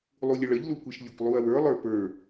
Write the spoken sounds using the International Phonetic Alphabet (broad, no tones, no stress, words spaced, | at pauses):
lˠulʲəɭəʎ lukʷeʃlʲʊkʷ lˠuɐ̯wə˞ lˠə˞pə˞